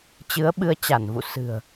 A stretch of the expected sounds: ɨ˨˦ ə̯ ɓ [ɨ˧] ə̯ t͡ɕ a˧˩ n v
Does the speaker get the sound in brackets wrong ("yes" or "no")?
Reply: no